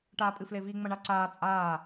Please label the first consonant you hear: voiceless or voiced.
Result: voiceless